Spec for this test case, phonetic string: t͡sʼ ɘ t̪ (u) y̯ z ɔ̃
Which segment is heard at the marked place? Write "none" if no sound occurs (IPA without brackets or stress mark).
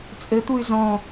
u